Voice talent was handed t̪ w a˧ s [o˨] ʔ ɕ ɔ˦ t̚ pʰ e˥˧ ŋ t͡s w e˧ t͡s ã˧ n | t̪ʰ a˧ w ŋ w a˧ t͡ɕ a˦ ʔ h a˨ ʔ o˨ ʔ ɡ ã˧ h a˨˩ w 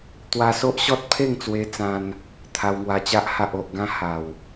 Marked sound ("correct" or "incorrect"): incorrect